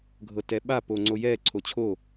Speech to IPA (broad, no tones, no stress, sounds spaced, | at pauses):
ɡʱ ɤ t ɛ ɓ a p o ŋ͡ǀ o j ɛ ǀʰ o t͡ɕʰ o